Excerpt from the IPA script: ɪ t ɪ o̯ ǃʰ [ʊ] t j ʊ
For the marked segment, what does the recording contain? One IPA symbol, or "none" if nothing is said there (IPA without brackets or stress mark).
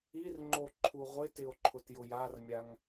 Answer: ʊ